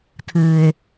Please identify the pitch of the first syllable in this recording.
low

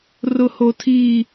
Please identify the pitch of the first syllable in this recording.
high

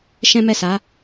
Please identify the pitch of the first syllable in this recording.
high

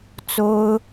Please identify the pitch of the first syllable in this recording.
high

